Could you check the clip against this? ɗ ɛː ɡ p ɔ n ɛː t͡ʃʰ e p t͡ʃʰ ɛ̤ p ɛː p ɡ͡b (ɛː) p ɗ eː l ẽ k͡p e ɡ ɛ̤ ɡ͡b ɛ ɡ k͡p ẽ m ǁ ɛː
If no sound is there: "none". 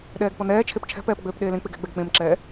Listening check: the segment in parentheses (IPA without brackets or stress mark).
øː